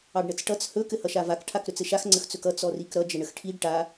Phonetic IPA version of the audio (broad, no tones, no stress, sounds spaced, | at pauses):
ɑ ɖ ɳ ə t͡s ʈ ʌ t͡s h ɵ k ɘ h ʌ ʃ a v a k ʈʰ a k ɾ ɵ t͡s ɘ ʃ a x ŋ͡ǀ ə x t͡s ɵ k ʌ t͡s ɔ r i k ɾ ʌ d͡ʒ ə ɳ ə x ʈʰ i ɖ ʈ a